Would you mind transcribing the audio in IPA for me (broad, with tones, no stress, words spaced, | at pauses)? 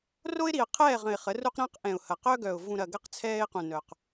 ro˦ɪ̯ ɾi˨ə̯qʰɛː˦˨ʁə̃˨ɪ̯ χə˨˦ru˦q ɾə̃ː˦qʔɛ̃˨ʊ̯hɐ˨ qœ˦ɡœ˨ʊ̯ vũ˨ɾɐ˨ ɡɐ˦q t͡sʰɛː˦ɪ̯qũ˨nœ˨q